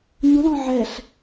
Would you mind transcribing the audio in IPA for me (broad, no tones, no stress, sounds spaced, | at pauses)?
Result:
ɲ u l ɔ̃ ʕ ɛ ɬ